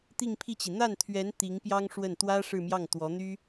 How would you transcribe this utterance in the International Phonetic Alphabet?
t̪ i˥˧ ŋ pʰ i˥˩ t͡ɕ i˩ n̪ a˥˩ n t̪ʰ ɥ ɛ˧˥ n t̪ i˧˥ ŋ p j ɑ˥ ŋ ʂ w ə˥˩ n t̪ w ä˥ ʂ ɻ̩˥˧ m j ɑ˥˩ ŋ t̪ w ɔ˧˥ n̪ y˥

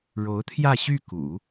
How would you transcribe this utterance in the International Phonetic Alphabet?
ɻ o˧˥ ʊ̯ t̪ʰ j ä˥˧ ɕ y˥˩ k ṵ˨˩˦

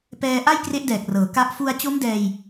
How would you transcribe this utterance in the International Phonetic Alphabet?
p ɛː˧ ʔ a˥˩ j k r e˦˥ ʔ d ɛː˨˩ k̚ r ɤː˩˦ k a˦˥ ʔ f u˧ a̯ t͡ɕ o˦˥ m d ɛː˧ j

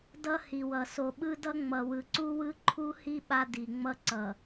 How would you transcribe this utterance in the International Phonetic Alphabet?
d ʌ˦ h i˨ w ʌ˨ s o˨ ɓ ɯ˦ d ʌ˦ ŋ͡m ʌ˨ w ɯ˨ ǀ u˦ w ɯ˦ ǃʰ u˦ h i˦ ɓ a˦ d i˨ ŋ͡m ʌ˦ ǀ ʌ˨

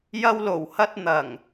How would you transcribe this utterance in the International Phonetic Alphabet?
j ɐ˧ w l o˨˩ w h ɐ˧ t̚ n̪ ɐ˨˩ ŋ

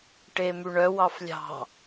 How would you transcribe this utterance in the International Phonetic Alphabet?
ʈ e m y ɳ œ w ɑ f lʲ ɑ̤

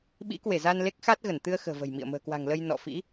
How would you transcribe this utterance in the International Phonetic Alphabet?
ɓ ḭ˧˥ k w e˧˩ z a˧ n l e˦˥ k̚ x a˦˥ t̚ ɣ ə˧˩ n t̪ ɨ˧ ə̯ x ə̤ː˨˩ v ə̤˨˩ j m ḭ˧˨ ə̯ m ə̤ː˨˩ k w a̤˨˩ ŋ l ə˧ j n ɔ̰˧˨ f ḭ˧˥

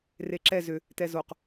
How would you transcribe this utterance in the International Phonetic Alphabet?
r e ǁ ɛ z ʏ | t ɛ z o q

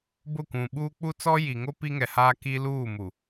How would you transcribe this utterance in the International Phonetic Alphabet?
b ʊ˦˨ kʷ ũ˨ ɓ uː˦ k͡p u˦ t͡s ɔ˦ j i˨ ŋ o˦ p i˦ ŋ ɛ˨ h aː˦ k i˦ l uː˦˨ m u˨

